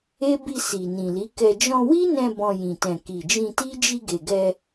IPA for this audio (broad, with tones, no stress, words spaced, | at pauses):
e˦ bi˧ si˨ nĩ˨li˨˦kɛ˧ d͡ʒɔ̃˧wi˦nɛ̃˧ bɔ̃˧jĩ˨ tɛ̃˨ki˨d͡ʒĩ˧ ti˦ d͡ʒi˧ɡe˨ɡɛ˧